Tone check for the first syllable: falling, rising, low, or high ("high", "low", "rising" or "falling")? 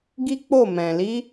high